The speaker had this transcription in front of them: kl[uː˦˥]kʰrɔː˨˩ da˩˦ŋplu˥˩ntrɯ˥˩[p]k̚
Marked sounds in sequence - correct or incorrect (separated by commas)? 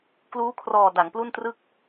correct, incorrect